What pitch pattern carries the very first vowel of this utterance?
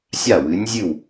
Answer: falling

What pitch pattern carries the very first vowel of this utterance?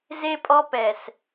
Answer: high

